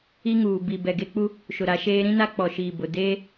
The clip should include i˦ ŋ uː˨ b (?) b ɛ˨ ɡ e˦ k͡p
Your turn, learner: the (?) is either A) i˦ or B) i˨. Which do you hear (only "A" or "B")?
B